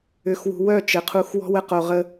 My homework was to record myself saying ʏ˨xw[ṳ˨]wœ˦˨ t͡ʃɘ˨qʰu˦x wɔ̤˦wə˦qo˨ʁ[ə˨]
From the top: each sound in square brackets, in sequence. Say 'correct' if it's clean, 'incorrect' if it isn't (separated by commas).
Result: correct, incorrect